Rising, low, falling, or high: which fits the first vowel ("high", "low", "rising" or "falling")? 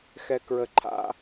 low